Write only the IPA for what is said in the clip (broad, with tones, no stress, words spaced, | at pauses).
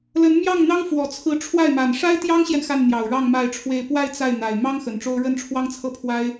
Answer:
lə˧˥nmjɑ˥˩ŋn̪ɑ˥ŋfwɔ˨˩ t͡sʰɹ̩˧˥ʈ͡ʂʰwa˥˩ɪ̯ma˨˩n ʂa˥ɪ̯t̪jɑ˥ŋɕjɛ˨n xa˥˩nn̪jɑ˨˩ʊ̯ɻɑ˥˧ŋ ma˥˧ɪ̯ʈ͡ʂʰwe˥˧ɪ̯ pwa˥˧ɪ̯ t͡sa˥˩ɪ̯n̪a˨˩ɪ̯ mɑ˥ŋ xə˨˩nʈ͡ʂo˥ʊ̯ ɻə˥˩nʈ͡ʂʰwɑ˥ŋt͡sʰɤ˥˩pʰwa˥ɪ̯